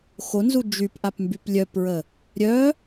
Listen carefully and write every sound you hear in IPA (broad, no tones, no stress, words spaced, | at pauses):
xonzu d͡ʒypʔapmbyp lʲœpɹə | ɾʲœ